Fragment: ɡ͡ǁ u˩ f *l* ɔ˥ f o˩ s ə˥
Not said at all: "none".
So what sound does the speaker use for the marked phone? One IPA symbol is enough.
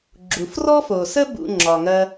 r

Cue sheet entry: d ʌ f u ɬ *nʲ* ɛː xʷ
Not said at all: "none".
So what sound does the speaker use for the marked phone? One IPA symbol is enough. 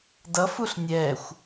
nʲ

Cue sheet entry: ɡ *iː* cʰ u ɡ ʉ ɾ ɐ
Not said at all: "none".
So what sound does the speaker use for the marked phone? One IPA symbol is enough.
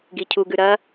i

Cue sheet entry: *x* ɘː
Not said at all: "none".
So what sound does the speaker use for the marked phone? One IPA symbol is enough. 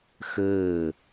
x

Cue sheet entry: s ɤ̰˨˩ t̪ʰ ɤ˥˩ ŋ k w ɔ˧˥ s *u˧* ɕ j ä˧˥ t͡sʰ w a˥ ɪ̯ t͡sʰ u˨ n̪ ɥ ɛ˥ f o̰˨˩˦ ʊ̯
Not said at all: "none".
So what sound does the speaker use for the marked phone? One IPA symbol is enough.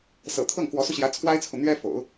u˧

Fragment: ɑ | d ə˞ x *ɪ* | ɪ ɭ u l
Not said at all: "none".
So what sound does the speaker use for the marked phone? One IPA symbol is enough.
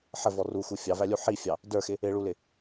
ɪ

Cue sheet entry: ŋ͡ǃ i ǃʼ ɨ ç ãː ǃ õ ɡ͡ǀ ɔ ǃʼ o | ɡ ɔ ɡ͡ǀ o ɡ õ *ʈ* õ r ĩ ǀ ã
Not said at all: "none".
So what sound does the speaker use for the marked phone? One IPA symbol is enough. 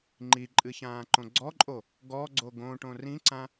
ʈ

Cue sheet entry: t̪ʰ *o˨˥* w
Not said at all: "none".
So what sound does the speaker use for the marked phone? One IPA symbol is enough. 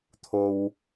o˥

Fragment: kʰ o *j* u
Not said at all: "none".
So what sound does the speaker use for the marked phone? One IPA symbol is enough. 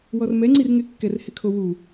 w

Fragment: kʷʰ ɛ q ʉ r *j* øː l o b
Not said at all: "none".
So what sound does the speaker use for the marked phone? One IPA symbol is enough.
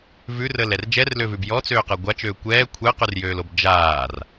j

